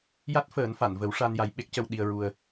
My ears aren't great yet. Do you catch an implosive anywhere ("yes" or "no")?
yes